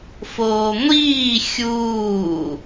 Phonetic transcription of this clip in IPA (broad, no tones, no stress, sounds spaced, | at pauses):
f oː ŋʷ iː xʲ uː